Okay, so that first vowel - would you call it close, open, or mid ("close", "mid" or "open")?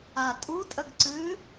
open